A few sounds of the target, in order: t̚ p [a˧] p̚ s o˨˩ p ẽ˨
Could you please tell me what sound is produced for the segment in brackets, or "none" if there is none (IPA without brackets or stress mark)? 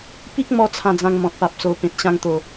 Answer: a˨